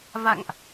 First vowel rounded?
no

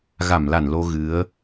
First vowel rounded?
no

